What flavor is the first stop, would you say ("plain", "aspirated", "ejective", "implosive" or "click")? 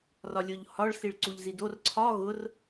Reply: click